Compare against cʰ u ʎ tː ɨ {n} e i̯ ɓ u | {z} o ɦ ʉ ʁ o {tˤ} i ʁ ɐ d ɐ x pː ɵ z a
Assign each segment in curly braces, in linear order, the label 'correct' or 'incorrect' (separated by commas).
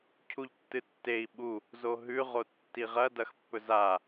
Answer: incorrect, correct, incorrect